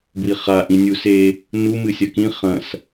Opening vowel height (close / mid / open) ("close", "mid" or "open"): close